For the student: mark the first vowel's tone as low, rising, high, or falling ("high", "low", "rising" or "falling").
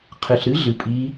low